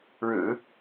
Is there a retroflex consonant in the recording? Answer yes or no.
yes